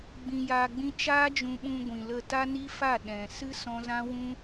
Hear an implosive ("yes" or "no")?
yes